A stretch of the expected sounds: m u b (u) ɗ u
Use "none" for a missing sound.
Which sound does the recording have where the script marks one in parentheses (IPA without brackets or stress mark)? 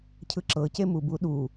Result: u